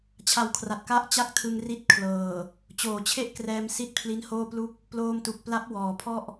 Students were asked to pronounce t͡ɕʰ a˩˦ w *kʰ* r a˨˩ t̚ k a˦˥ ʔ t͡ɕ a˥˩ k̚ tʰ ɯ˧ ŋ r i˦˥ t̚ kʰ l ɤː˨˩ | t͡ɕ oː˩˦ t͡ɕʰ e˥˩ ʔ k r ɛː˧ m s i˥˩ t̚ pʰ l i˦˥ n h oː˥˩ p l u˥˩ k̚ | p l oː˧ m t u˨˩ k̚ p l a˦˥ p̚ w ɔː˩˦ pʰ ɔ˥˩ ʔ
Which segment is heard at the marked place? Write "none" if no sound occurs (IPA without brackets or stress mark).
kʰ